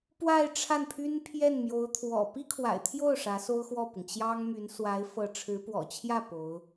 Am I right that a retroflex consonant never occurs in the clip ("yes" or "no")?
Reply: no